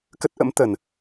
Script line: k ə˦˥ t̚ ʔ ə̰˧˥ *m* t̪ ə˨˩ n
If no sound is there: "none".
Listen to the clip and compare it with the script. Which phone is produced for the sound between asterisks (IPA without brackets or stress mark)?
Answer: m